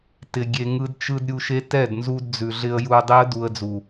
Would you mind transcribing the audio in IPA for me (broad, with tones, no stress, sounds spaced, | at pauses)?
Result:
t ɪ˧ ɡʲ e˧ ŋ ɯ˦ d t͡ʃ ɯ˦ d ɾʲ u˧ ʃ e˦ t ɛ˦˨ d n z u˧ d d͡z ʉ˨ ɮ ɪ˧ ə̯ j u˧ ə̯ dˤ i˦ ə̯ d u˧ ə̯ d͡z u˨